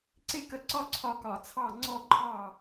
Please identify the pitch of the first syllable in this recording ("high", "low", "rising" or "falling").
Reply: falling